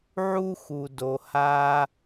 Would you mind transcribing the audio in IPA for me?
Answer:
ʕu˥xu˩ do˩ ha˧

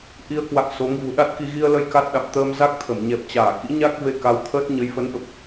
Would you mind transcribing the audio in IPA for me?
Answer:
ʔi˧ə̯kwa̰˧˨ŋ so˨˦ŋ vṳ˨˩ɗa˦˥t̚ki˧ ɣi˧ə̯lə˧j ka˦˥t̚ɗa̰˧˨m t̪əː˧mza˦˥k̚ t̪ʰə˧˩m ɲɛ˨˩p̚t͡ɕaː˧˩kḭ˧˥ɲa˦˥k̚ ve˧ka˨˦wt̪ʰəː˦˥t̚ ɲə˨˦jfə˨˦nɓə˨˩p̚

